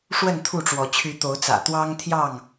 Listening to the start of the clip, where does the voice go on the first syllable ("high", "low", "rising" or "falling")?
falling